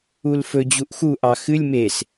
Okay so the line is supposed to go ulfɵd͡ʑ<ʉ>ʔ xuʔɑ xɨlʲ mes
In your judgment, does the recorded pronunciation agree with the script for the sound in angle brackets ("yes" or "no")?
no